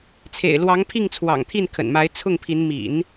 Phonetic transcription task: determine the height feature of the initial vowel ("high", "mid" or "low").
mid